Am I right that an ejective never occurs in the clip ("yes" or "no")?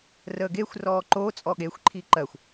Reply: no